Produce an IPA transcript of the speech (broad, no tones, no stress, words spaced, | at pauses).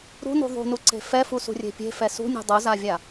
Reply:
ɾṳnṳ ðˤṳnuǀe̤ fɛfusṳrʲe̤ pʲe̤fɛ sṳnʲṳ dˤuzavʲa